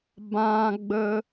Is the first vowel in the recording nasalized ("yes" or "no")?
yes